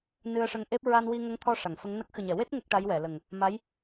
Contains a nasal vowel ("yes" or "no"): no